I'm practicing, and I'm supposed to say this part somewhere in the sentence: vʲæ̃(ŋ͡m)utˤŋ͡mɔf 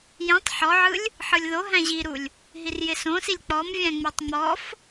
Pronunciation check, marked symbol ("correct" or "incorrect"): correct